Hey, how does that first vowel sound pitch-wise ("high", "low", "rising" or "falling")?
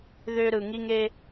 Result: high